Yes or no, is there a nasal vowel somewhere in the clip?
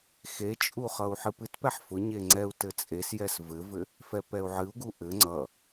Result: no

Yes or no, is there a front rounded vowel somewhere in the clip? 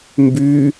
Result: yes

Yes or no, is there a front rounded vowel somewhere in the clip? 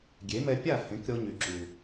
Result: yes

